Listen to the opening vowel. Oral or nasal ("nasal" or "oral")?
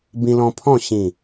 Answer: nasal